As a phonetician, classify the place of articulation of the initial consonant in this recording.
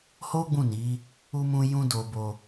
glottal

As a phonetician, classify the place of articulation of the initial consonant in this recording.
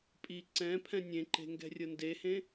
labial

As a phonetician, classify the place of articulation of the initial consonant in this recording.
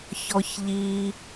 palatal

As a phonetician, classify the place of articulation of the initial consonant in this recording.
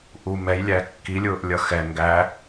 glottal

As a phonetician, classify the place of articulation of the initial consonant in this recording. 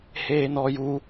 glottal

